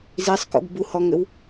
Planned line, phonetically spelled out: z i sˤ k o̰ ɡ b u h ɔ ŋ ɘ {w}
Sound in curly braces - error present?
no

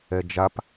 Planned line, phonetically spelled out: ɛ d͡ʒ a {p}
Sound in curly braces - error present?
no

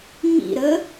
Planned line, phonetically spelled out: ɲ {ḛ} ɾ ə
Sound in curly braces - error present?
yes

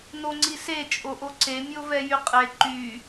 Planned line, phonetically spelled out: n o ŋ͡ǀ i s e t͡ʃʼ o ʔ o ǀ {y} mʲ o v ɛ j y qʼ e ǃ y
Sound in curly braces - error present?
yes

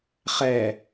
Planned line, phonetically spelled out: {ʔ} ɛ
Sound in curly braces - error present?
yes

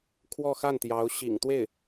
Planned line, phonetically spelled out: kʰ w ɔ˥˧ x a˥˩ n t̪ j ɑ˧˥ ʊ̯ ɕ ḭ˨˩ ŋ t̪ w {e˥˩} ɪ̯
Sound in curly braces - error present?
no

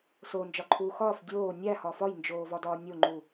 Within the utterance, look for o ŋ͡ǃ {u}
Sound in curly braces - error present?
no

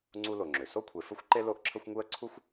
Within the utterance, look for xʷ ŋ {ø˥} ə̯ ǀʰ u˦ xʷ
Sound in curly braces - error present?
yes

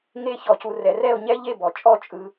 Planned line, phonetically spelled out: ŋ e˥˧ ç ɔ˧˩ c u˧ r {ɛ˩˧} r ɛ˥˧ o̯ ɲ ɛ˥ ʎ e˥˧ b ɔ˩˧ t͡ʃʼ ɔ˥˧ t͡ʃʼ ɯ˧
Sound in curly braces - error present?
no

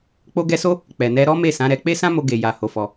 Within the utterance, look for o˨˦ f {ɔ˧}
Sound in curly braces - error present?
no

